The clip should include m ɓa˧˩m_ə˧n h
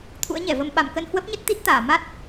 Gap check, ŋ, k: k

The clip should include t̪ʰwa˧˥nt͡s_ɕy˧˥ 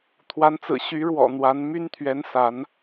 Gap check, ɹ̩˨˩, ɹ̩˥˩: ɹ̩˨˩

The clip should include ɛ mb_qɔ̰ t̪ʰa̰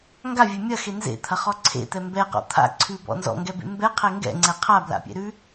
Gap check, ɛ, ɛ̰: ɛ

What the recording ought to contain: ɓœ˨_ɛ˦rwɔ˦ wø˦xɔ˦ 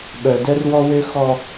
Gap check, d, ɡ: d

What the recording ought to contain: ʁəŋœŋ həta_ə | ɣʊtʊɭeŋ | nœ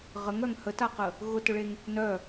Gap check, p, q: q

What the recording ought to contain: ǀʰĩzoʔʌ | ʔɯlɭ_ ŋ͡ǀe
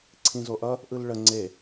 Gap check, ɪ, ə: ə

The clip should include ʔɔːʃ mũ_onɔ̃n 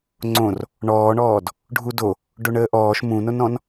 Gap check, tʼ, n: n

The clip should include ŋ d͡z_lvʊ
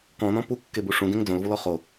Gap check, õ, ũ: õ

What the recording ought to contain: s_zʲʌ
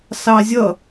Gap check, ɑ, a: ɑ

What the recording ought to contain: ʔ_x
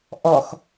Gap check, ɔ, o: ɔ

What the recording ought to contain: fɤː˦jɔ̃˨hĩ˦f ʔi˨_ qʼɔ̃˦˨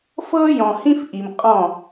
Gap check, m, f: m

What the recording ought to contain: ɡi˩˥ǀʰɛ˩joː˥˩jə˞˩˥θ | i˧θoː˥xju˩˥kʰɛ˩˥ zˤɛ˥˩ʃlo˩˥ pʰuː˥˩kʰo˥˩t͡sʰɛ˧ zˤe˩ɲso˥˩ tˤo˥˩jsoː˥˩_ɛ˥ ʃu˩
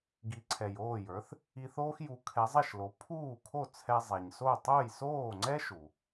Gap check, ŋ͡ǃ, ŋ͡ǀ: ŋ͡ǀ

